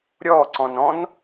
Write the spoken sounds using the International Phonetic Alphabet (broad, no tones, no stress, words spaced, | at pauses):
ɾʲɔːǀɔ̃n ɔ̃n